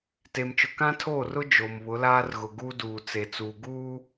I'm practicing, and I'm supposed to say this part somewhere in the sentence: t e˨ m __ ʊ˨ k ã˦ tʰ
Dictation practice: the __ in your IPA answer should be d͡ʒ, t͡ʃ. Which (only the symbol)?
t͡ʃ